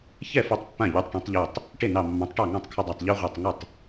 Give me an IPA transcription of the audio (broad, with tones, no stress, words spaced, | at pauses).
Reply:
çɛ˥˩ fo˦tˤpːã˥˩ ʎu˨˥tˤʈẽ˨˥tˤʎo˧˩tˤ | ʈe˥˩nɑ˧˩mːɑ̃˨˥tˤʈɑ˥˩ ŋɑ̃˥˩tˤkʰʊ˦dˤa˧˩tˤ ʎo˦ʁʷɑ˧˩tˤŋə˥˩tˤ